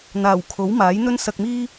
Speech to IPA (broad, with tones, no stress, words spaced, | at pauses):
n̪aː˨˩wkʰo˨˥wmaː˨˥j n̪ɵ˥nsɐ˧k̚miː˥